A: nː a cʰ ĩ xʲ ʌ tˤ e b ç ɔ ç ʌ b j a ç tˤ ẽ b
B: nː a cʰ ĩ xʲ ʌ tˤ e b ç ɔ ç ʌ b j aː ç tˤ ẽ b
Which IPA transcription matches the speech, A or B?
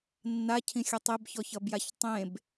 A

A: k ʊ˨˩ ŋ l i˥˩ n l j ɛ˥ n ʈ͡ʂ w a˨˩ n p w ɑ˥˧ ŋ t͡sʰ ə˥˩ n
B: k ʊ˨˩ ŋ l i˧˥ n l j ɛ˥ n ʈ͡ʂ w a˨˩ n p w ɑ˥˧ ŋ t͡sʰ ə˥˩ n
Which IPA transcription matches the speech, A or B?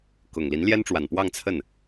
B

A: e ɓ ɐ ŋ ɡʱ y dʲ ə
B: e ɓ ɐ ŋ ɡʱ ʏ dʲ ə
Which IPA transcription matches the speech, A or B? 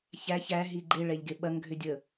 B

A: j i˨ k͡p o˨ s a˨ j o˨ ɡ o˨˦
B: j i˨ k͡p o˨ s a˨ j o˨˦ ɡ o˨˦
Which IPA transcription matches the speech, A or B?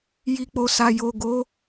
A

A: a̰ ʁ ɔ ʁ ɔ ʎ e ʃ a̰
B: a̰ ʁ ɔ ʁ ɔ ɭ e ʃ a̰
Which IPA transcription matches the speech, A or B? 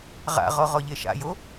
A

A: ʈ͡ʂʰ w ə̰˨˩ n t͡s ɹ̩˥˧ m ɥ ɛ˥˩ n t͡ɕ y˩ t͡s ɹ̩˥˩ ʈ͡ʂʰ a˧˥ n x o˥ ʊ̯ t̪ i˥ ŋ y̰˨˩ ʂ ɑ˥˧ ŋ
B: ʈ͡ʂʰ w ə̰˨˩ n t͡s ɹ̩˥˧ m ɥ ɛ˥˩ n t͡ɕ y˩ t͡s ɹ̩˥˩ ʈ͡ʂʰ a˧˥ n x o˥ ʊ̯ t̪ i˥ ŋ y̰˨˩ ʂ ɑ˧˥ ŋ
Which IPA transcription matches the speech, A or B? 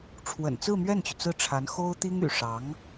B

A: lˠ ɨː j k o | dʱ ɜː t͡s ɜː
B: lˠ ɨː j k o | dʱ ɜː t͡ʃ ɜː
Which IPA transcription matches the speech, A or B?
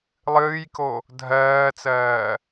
A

